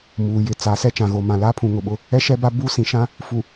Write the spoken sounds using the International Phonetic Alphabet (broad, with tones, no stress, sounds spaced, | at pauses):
m uː˨ j ɪ˨ t͡s a˨˦ s ɛ˦ t͡ʃ ã˨ ɣ o˨ m ã˨ l aː˦ pʰ ũ˨ ŋ ʊ˨ ɓ ʊ˦ | ɛ˦ ʃ ɛ˦ b a˦ b uː˦ s ĩ˨ ʃ ã˦ | f u˨